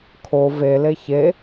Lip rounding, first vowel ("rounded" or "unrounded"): rounded